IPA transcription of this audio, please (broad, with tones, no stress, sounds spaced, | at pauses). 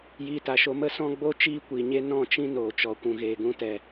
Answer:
j iː˧ t a˨ ʃ o˧ m ə˦ s ɔ̃˦ ɡ͡b o˦ t͡ʃ iː˦ kʷ iː˨ ɲ e˦ n ɔ̃˦˨ t͡ʃ ĩ˦ n oː˨ t͡ʃ ɔ˨ kʷ ũ˨ ɣ eː˨ ɡ ũ˧ t ɛ˨